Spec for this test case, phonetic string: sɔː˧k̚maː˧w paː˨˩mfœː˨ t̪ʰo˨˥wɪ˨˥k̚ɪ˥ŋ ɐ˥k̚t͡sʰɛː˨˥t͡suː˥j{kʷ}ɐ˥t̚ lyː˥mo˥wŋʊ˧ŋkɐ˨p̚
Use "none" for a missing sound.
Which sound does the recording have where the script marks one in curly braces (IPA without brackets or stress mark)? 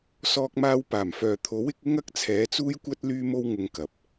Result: kʷ